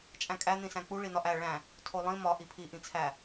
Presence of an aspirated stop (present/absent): present